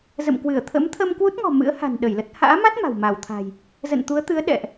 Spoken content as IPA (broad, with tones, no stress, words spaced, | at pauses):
zə̰˧˨m kwɨ˧˩ə̯t̪ʰə̰˧˥m t̪ʰə˧mkwu˦˥t̚ŋɔ̤˨˩ mɨ̰˧˥ə̯ha̤˨˩n ɗə˧˩jlə˦˥t̚ ha̰ː˧˥ma˦˥t̚ ma̤˨˩wma˧˩wt̪ʰa̤˨˩j | zə̰˧˨nt̪u˨˦ə̯t̪ɨ˨˦ə̯ ɗɛ̰˧˨ʔ